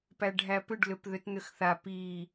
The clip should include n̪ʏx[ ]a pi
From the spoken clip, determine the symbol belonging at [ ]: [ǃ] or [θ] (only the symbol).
θ